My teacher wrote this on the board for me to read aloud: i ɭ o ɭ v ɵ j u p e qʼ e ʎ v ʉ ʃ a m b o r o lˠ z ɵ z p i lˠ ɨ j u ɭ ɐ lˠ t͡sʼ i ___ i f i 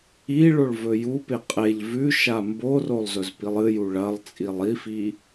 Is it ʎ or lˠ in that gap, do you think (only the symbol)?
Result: lˠ